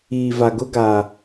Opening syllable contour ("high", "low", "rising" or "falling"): low